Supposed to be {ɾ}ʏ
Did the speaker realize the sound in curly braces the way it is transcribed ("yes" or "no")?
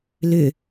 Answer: no